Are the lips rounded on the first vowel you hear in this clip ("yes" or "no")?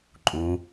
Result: yes